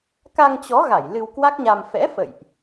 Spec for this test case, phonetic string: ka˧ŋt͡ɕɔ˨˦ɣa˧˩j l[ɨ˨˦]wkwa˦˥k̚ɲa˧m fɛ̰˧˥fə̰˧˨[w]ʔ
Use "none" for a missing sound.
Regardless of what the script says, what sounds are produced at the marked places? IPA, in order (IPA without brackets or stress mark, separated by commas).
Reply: ɨ˧, j